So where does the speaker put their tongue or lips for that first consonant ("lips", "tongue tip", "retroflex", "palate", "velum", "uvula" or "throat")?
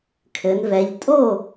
velum